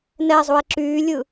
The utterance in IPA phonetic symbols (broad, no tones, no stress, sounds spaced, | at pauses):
n ɛ zˤ u e̯ ǁ yː lʲ ɯ